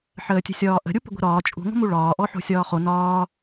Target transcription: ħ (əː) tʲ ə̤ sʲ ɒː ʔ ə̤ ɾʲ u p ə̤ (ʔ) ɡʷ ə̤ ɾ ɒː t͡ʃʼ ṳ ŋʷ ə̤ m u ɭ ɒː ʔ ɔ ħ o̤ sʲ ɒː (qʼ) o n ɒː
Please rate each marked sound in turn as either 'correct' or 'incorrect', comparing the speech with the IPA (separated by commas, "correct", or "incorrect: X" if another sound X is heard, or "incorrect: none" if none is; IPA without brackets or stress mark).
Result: correct, incorrect: none, incorrect: χ